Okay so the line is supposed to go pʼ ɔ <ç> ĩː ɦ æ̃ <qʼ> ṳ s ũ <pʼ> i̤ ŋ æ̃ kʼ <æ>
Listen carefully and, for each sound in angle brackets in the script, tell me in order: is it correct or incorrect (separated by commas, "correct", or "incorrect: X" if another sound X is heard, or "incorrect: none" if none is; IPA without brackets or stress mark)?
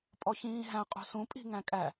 correct, correct, correct, correct